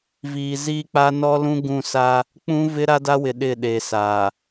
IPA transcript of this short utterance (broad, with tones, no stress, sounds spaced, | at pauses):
v iː˨ z iː˦ k͡p aː˦ n ɔ˦ l ũ˦ ɡ ũ˦˨ s a˦ | k͡p ũ˦ v ɪ˦ ɾ a˦ d a˦ w ɪ˨ ɗ ɪ˦˨ ɗ e˨ s aː˨